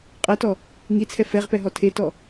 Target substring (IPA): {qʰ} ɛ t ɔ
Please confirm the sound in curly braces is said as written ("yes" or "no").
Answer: no